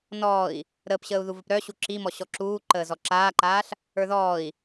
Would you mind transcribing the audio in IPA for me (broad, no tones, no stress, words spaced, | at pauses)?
nɔːi̯ | ɾəːpɕəːu̯ðu vəpɾœɕu ǁimɔ ɕɔǁuː ǃəːzɔǁaːǃaːɬ | ə˞ðɔːi̯